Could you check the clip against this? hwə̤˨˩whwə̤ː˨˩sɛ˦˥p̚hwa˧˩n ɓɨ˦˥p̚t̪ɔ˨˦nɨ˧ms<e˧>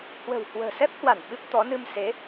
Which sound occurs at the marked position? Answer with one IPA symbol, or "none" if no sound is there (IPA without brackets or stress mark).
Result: e˨˦